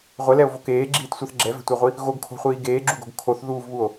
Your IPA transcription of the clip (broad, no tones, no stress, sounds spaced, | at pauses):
ʁʷ ɛ l ɛ o̯ v o k eː ɡ͡ǁ iː t sʷ ɜ θ ɡ͡ǁ ɛ v ɛ̤ tʷ e ʁʷ i | ɣ o ɡ kʰ o̤ χʷ iː ɡ eː ɡ͡ǁ u ɡ o̤ ɡ kʰ o θ ð uː v β u o̯